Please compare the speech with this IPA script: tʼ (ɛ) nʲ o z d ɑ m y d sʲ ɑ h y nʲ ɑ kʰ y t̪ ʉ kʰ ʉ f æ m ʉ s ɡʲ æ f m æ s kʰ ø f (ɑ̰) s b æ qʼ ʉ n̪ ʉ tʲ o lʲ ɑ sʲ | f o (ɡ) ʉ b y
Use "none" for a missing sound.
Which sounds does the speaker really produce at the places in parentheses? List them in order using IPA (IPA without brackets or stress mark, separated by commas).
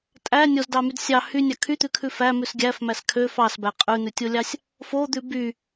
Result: æ, ɑ, d̪